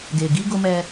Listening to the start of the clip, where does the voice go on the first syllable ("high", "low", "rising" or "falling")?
low